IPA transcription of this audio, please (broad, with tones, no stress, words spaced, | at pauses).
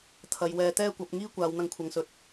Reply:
t̪ʰɐ˨jwɛː˨˧t̪ɛː˥kʷɐ˨˥p̚ ŋiː˥kʷaː˨˧w n̪ɐ˧ŋkʷʰɐ˨˧ŋsɵ˨˥t̚